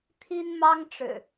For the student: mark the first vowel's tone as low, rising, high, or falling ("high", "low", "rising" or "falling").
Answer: high